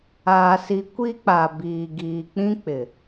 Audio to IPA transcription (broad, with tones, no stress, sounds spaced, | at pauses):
aː˨ s i˨ kʷ i˦ k͡p a˨ b iː˨ ɡ iː˨ k͡p ĩ˦ k͡p ɪ˨